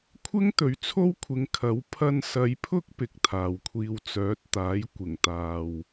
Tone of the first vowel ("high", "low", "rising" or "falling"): high